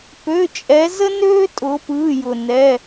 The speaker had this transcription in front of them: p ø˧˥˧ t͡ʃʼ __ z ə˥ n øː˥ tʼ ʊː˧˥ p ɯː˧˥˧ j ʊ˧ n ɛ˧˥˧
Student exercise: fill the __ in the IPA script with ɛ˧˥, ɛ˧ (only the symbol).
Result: ɛ˧˥